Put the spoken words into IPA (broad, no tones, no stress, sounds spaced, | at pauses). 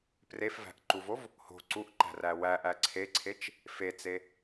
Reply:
p r e f v æ̤ ʔ ǃ u v o v | h o̤ ǀ u ʔ ǃ æ̤ r æ w æ ʔ æ ǀʰ e ǀʰ e t͡ʃ | f e t͡s e